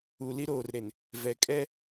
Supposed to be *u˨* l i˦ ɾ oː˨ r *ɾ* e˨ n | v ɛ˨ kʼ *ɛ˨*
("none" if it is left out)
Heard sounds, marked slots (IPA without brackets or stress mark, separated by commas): u˨, ɾ, ɛ˦